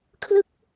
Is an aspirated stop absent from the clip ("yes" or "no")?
no